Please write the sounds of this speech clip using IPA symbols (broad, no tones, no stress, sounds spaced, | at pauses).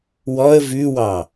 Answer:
w ɔ ə̯ v ʉ w ɑ